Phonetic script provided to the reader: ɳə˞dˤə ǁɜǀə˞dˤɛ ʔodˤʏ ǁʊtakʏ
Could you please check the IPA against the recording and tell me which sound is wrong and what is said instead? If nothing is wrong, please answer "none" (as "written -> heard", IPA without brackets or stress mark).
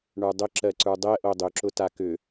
none